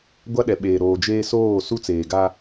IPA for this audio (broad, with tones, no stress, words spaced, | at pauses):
ɡʷa˦ɗɛ˨ɓeː˨ ɾoː˨d͡ʒeː˦ soː˦˨ su˦t͡seː˨ɡa˦